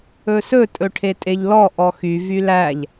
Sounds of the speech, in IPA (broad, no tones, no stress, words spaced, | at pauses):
ɵsɵ tʼɵʈʰetʼeʎlɔ ʔɔxy vylæʎ